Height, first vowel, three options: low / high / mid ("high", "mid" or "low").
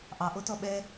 low